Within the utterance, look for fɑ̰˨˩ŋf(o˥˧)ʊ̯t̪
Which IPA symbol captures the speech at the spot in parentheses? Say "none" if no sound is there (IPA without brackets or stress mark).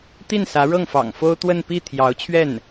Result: o˥